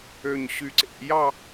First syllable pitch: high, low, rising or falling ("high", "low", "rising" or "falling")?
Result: low